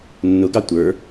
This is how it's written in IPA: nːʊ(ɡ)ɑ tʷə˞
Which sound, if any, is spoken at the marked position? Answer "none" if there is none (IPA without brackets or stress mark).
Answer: ɡ